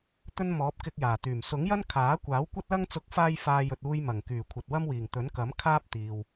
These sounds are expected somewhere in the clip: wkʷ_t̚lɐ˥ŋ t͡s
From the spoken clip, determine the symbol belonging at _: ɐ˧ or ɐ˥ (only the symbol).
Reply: ɐ˥